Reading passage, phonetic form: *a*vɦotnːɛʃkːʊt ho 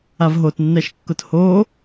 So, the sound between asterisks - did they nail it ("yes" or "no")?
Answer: yes